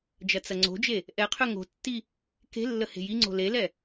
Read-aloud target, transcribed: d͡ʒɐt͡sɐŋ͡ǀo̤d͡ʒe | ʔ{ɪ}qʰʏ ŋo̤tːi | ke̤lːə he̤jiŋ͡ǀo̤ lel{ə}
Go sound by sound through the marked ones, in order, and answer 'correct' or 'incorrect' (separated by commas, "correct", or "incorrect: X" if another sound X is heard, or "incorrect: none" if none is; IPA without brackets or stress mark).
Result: incorrect: ɛ, incorrect: ɛ